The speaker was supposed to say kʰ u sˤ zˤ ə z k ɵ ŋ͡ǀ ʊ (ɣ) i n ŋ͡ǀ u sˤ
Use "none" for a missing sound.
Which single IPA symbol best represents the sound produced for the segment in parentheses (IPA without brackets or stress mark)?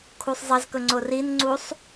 r